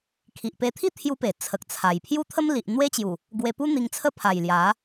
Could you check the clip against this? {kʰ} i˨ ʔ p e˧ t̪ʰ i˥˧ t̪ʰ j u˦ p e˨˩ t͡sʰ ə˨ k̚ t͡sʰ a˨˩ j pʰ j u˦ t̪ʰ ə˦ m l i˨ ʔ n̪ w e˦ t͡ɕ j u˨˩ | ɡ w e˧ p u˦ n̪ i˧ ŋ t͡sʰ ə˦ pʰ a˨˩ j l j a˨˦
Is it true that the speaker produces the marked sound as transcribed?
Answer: yes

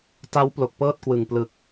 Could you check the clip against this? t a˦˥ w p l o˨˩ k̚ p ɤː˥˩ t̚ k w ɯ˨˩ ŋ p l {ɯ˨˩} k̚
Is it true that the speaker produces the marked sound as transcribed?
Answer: yes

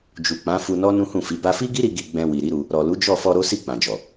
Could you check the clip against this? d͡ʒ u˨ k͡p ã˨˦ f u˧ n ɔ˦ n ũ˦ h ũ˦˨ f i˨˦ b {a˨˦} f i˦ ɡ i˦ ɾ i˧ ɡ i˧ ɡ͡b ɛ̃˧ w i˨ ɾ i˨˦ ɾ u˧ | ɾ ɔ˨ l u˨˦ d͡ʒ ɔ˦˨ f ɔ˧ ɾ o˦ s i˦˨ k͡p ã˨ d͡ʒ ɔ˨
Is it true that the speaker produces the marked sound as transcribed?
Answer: no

